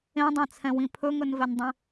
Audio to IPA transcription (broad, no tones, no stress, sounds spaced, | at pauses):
ẽ dˤ ẽ t͡sʰ ɛ̃ w ĩ pʰ ɵ ŋ ɵ n v ɛ n dˤ ẽ